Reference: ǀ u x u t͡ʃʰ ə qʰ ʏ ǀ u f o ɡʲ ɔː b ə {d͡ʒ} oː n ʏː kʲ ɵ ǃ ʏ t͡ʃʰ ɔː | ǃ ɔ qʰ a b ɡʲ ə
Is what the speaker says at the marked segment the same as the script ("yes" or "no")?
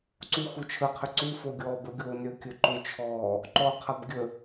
no